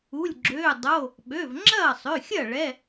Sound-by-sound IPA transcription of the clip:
u˩˧˩ lʲ ɡ͡ǁ øː˩˧˩ dˤ o˩˧˩ | ɓ ø˩˧˩ v ŋ͡ǁ ɐː˥˩ sˤ ø˩˧˩ xʲ ɐ˥˩ ɭ ɛ˩˧˩

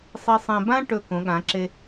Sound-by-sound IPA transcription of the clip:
sˤ i˧ sˤ ẽ˧ b ã˥ ʈ ɵ˧˩ k õ˩˧ ɠ ã˩˧ ǁ e˧

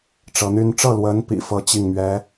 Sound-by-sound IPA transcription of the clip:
ʈ͡ʂ ɤ˧˥ n̪ y˥ n ʈ͡ʂ ɤ˥˩ l w ə˧˥ n p ḭ˨˩ f ɤ˥ t͡ɕ i˥˩ ŋ m ɥ ɛ˧˥

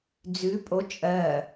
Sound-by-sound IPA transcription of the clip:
d͡z ʉ pʼ o t͡ʃʼ ɜ

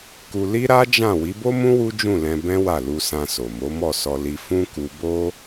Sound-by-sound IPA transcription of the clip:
k u˧ l i˦ ɾ a˦ d͡ʒ ã˦˨ w i˨˦ b o˦ m ũ˦ w u˦ d͡ʒ ũ˦˨ l ɛ̃˧ b ɛ̃˦ w a˦˨ l u˧ s ã˧ s o˨ m o˨˦ m ɔ˦˨ s ɔ˧ l i˧ f ũ˦ k u˧ b o˦

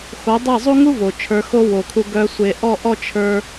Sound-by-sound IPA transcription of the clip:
x o˨˦ dˤ e˦˨ zˤ u˦ ŋ u˦ v o˨ t͡ʃʰ ə˞˧ x o˦ w o˨ kʰ u˧ ɡ œ˧ sʷ e˨ ʔ ɔ˦˨ ʔ ɔ˦ t͡ʃʰ ə˞˦

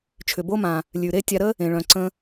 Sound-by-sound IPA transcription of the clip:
t͡ʃʰ ʏ˨ b o˦ m ã˨ | lʲ ʉ˨ ɾ e˦ tʲ a˧ ɾ ə˦ | ẽ˨ ɭ œ̃˨ ǀ ə̃˧

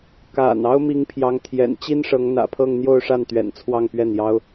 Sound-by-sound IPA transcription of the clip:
k a̰˨˩ n ɑ˥ ʊ̯ m i˧˥ ŋ pʰ j ɑ˧˥ ŋ t̪ʰ j ɛ̰˨˩ n t͡ɕ i˥ n ʂ ɤ˧˥ ŋ n̪ ä̰˨˩ pʰ ɤ˥˧ ŋ n̪ j o˥˧ ʊ̯ ʂ a˥˩ n t̪ ɥ ɛ̰˨˩ n t͡sʰ w ɑ˥˧ ŋ p ɥ ɛ˥˩ n j ɑ˥ ʊ̯

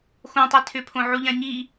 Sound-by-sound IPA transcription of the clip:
x õ tˤ i tʰ ʏ pʰ õ ʕ u ʎ ã ɲ i

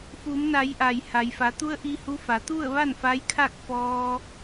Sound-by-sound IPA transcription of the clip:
f u˩˧ m n a˩˧ j ʔ a˩ j h a˩ j f a˩˧ t̪ u˧ ə̯ ʔ i˧ h u˧˥ f a˩˧ t̪ u˥˨ ə̯ ʋ a˥˨ n f a˧˥ j kʰ a˥˨ k̚ f ɔː˧

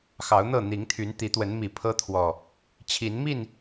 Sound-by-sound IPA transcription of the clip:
x ɑ˨˦ ʊ̯ n̪ ɤ˥˨ n̪ i˨˦ ŋ t̪ʰ y˨˦ n t̪ i˨˦ t̪ w ə˨˦ n m i˨˩ pʰ ɤ˦ t̪ʰ w ɔ˨˩ | t͡ɕʰ i˨˦ n m i˥˨ n

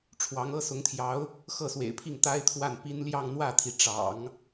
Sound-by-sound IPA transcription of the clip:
ʈ͡ʂʰ w ɑ˧˥ ŋ ɤ˥ s ʊ˧˥ ŋ t̪ʰ j ɑ˧˥ ʊ̯ | x ɤ˥˩ s w ḛ˨˩ ɪ̯ pʰ i˥˩ ŋ t̪ a˥ ɪ̯ t̪ʰ w a˥˩ n p i˥ n l j ɑ˥˧ ŋ n̪ w ä˥˩ t̪ʰ i˩ ʈ͡ʂ ɑ̰˨˩˦ ŋ

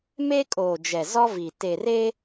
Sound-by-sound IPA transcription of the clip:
m e˦ kʼ oː˨ d͡ʒ ɛ˨ z ɔ˦ v i˨ t e˨ r e˦

